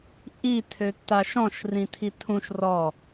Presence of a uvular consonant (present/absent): absent